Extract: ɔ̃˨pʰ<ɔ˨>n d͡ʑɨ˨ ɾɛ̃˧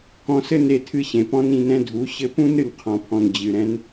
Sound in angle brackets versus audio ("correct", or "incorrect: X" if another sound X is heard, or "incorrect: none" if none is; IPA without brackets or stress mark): incorrect: ɔ̃˨